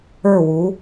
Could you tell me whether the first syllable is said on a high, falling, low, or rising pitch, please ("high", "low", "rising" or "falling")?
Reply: falling